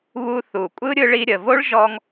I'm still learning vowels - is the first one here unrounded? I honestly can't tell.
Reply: no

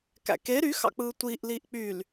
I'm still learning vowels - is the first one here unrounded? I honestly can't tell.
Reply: yes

